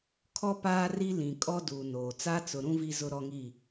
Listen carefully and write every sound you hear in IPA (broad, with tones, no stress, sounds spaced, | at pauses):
kʰ ɔ˦ p aː˦ r i˦ l ĩ˨ kʼ ɔ˦ d uː˨ n oː˨ t͡s a˦ t͡s ʊ˨ ɾ ũ˦ v i˦ z ʊ˦ ɾ ɔ˦ ŋ i˦˨